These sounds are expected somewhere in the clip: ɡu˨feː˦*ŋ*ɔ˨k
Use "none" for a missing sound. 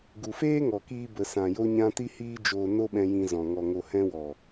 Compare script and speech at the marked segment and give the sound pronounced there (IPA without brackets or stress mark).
ŋ